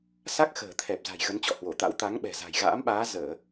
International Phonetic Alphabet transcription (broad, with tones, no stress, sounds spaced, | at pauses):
s a˦˥ k̚ x ə̤ː˨˩ t̪ʰ ɛ˨˩ p̚ z a̤˨˩ j ɣ ə˨˦ n t͡ɕ ɔ̰˧˨ h w o˧˩ t̪ a̰˧˥ w t̪ a˨˦ ŋ ɓ ɛ̤˨˩ z a̤˨˩ j ɣ a̰ː˧˥ m ɓ aː˨˦ z əː˧˩˨